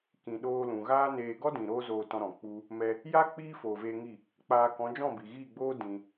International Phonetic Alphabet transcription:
kĩ˨ɗoː˧lũ˨ ɣaː˦neː˧ ɡɔ˦dĩ˨ ɾoː˦zoː˧tɔ̃˧ ɾɔ̃˨k͡pu˦ | mɛ˧ | ja˦ k͡piː˦foː˨veː˧ŋi˦˨ | k͡paː˧kɔ̃˨˦ d͡ʒɔ̃˦˨bi˨ɣiː˦˨ɡ͡boː˦ dĩ˧

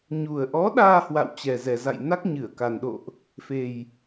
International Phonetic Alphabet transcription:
ɲu˨˩ə̯ʔɔ˨˦ɗaː˧ hwa̰˧˨wt͡ɕɛ˨˩zɛ˨˩za̰˧˨j na˦˥k̚ɲɨ˧˩ə̯ka˨˩n ɗo̰˧˨ʔ | fe˧j

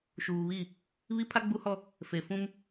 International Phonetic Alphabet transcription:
ʃuː˨βi˦˨ | βi˦pʰa˦ɡ͡bu˦hɔ˦ | fe˨fũ˦m

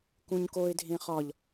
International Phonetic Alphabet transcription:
kũɲkoɪ̯ dʱẽχɒʎ

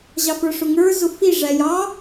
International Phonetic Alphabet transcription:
ʑɑfə˞ʂʊŋə˞ zʊfi ʐæjɑ

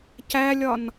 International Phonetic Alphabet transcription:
cælʲɒn

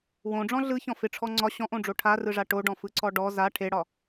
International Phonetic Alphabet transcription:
wõɖ͡ʐɔ̃ ɮɯçɔ̃ fɪʈ͡ʂʰɔ ŋ͡ǀɒ ɕɔ̃ʔõɖ͡ʐo ʈʰarɯʐa ʈoɖɔ̃fɯǀɔ ɖɔ za ʈʰeɽɒ

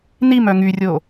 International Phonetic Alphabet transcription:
nimœ ŋyrʲo

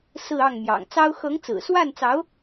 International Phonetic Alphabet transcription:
sɹ̩˥˧ ɑ˥˩ŋ mjɑ̰˨˩ŋt͡sɑ˥ʊ̯ xɤ˧˥ŋt͡sɹ̩˨˩swa˥˩nt͡sɑ˧˥ʊ̯

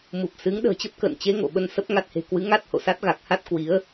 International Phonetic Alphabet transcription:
mu˨˩p̚sɨ˨˦ŋ ɗə̤ː˨˩t͡ɕə˦˥p̚kə̰ː˧˨nt͡ɕe˨˦ ŋo̰˧˨ɓə˧n sə˦˥p̚ ŋa˦˥t̚he̤˨˩ kwɨ˨˦ ŋa˦˥t̚ho̰˧˨sa˦˥t̚ ɣa˨˩k̚ha˦˥t̚ kwi˨˦ə̯

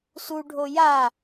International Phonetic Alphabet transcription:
suɖʱo ja

